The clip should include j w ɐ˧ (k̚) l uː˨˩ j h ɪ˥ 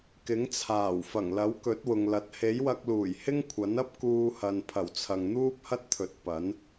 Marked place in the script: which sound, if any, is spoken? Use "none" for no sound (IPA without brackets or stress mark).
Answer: k̚